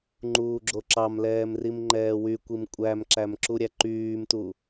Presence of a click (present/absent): present